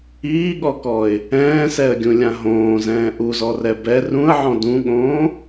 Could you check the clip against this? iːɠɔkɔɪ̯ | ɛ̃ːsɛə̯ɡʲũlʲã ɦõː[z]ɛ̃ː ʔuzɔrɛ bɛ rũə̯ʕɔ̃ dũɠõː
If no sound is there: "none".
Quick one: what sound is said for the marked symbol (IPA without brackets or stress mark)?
z